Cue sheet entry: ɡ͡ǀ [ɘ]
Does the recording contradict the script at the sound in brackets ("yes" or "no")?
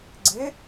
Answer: no